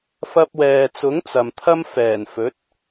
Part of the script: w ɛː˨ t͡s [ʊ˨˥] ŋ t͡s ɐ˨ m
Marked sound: correct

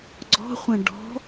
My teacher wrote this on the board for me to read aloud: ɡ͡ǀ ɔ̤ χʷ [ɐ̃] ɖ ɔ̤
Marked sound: correct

